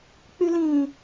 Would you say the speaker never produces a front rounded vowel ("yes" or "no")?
no